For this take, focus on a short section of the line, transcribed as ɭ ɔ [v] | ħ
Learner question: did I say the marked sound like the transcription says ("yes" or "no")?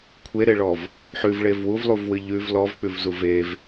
yes